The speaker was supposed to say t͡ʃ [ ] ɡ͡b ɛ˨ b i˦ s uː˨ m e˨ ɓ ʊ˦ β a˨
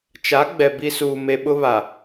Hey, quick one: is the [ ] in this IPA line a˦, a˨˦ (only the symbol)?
a˨˦